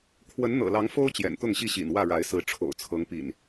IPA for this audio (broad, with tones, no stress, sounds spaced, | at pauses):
kʰ w ə˨˦ n n̪ ɤ̰˨˩ l ɑ˨˦ ŋ f o˦ ʊ̯ t͡ɕ j ɛ̰˨˩ n t̪ ʊ˥˨ ŋ ɕ i˥˨ ɕ ḭ˨˩ n w ä˥˨ ɻ a˨˦ ɪ̯ s ɹ̩˨˦ ʈ͡ʂʰ o̰˨˩ ʊ̯ t͡sʰ ɤ˨˦ ŋ p ḭ˨˩ n